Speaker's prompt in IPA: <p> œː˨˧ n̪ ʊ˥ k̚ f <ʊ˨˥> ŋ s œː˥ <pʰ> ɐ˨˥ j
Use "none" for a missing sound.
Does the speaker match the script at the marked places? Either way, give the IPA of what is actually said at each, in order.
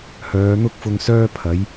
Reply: h, ʊ˧, pʰ

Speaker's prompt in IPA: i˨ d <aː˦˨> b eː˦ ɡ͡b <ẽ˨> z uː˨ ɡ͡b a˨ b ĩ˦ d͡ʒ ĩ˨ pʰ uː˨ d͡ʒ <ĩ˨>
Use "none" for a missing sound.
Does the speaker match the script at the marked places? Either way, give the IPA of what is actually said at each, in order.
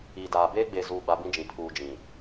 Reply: aː˨, e˨, ĩ˨

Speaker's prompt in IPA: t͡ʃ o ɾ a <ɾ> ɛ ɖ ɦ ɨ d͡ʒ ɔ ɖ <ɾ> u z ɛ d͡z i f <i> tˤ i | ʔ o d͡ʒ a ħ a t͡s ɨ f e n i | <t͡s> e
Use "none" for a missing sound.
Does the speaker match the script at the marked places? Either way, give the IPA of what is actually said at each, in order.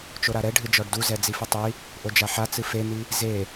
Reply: ɾ, d, ɨ, z

